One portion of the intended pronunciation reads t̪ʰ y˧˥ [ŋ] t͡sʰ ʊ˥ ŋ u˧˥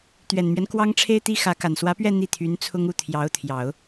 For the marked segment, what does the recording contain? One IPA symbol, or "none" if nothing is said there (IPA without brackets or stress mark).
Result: n